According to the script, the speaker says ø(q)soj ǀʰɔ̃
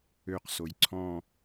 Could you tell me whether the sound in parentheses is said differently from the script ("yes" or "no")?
no